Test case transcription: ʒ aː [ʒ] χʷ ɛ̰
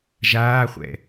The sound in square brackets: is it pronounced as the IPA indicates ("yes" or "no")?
no